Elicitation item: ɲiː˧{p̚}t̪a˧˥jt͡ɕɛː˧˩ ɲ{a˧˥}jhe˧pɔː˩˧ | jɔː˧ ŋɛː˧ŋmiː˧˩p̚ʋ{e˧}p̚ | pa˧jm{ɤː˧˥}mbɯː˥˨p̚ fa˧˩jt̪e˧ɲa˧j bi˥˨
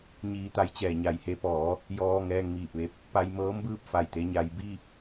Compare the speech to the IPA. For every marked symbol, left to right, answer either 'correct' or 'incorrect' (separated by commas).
incorrect, incorrect, correct, correct